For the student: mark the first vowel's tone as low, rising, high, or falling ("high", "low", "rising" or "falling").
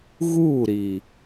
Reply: falling